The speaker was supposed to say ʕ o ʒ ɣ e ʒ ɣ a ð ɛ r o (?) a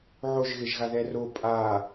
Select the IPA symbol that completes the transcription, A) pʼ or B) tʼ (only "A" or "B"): A